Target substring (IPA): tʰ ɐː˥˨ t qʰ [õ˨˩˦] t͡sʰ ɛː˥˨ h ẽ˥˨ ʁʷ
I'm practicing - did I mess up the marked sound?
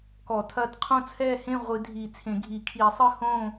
yes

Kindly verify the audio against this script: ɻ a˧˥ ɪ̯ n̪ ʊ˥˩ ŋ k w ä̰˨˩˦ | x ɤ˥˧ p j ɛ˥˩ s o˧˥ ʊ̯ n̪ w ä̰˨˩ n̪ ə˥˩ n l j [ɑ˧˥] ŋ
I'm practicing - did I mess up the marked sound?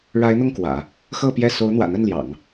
yes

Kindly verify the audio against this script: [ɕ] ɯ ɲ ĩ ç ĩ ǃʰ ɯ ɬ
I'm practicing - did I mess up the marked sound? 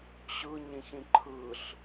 no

